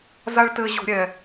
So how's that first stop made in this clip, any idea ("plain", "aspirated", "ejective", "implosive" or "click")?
plain